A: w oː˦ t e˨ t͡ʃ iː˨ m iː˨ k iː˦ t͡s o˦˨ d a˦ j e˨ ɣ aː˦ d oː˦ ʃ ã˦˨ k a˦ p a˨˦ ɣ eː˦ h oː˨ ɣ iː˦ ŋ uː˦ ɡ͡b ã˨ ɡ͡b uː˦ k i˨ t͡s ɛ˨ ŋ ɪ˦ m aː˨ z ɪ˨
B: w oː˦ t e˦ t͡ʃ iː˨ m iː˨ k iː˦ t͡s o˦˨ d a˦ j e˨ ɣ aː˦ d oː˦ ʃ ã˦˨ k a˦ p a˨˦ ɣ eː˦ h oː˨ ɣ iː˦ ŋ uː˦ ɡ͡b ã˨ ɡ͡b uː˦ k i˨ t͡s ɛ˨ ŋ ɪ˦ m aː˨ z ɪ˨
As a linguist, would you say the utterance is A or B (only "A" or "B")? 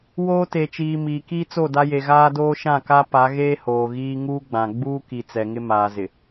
A